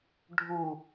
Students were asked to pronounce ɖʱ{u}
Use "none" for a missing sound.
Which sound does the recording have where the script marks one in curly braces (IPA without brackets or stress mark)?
u